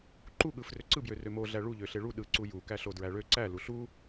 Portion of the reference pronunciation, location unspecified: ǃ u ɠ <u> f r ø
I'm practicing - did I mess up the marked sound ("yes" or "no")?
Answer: yes